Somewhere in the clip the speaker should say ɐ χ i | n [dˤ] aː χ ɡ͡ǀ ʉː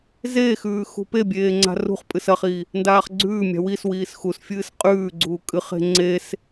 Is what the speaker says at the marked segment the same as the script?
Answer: no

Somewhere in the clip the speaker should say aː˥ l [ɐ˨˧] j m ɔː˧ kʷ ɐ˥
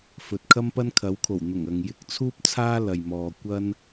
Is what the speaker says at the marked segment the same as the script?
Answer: no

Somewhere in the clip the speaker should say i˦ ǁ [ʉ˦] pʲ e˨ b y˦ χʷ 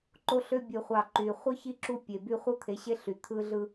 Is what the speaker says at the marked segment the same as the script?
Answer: no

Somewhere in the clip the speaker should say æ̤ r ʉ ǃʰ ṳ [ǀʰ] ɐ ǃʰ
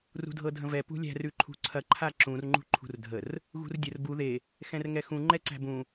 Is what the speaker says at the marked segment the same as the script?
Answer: yes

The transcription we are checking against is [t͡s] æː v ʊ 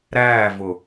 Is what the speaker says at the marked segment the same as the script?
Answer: no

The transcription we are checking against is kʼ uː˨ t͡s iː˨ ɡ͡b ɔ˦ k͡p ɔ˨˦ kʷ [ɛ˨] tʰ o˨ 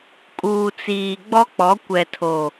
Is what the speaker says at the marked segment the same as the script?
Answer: yes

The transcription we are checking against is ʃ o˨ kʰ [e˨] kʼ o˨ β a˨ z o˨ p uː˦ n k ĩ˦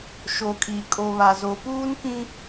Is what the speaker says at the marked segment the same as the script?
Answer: no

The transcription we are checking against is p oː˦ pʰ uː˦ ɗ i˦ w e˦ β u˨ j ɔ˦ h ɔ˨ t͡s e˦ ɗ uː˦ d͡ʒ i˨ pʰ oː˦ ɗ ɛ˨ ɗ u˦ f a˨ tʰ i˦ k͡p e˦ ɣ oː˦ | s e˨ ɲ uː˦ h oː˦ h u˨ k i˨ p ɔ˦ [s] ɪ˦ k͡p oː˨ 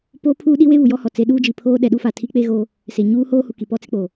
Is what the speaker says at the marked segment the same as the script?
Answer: no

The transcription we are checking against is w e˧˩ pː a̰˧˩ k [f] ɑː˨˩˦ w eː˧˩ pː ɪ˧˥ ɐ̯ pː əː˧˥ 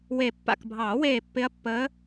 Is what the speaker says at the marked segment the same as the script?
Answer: no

